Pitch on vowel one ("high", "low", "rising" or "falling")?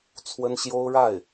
high